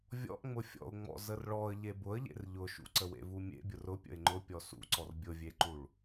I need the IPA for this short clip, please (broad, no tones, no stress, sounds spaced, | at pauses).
vʲ ɔ̰ ʔ ŋ͡m ʊ fʲ ɔ̰ ʊ̯ ŋ͡m ɔ̰ z ə r ɭ ɔ ə̯ ʎ e b ʊ ə̯ ʎ ḛ r ʎ ʊ ʃ ṵ ǀ ə w ḛ v u mʲ ḛ bʲ ʊ r ʊ pʲ ə̰ ɪ̯ ŋ͡ǃ ʊ pʲ ɔ s ṵ ǀ ɔ r bʲ ʊ vʲ e ǃ u ɭ